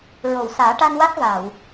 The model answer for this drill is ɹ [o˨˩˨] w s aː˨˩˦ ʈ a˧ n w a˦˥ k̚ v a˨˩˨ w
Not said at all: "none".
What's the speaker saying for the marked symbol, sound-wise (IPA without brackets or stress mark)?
o˨˩˨